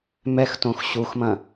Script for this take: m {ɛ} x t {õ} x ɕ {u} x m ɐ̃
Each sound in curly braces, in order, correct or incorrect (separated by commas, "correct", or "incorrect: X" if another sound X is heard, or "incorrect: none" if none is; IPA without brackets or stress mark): correct, correct, correct